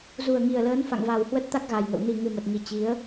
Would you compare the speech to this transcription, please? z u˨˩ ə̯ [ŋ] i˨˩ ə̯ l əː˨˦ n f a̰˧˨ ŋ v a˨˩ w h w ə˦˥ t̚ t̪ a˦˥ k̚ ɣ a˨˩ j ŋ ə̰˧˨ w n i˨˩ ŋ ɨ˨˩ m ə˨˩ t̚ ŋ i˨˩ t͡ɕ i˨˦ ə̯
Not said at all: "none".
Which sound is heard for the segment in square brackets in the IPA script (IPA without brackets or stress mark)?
ŋ